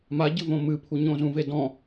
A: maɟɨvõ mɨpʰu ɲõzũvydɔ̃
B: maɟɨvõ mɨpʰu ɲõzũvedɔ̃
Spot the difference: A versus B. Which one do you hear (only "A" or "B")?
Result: B